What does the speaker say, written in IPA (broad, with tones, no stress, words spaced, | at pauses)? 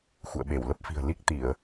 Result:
xṵ˧˨ə̯ɓe˧˩w lə˦˥p̚fi̤˨˩ə̯ li˦˥k̚t̪i˧˩˨ə̯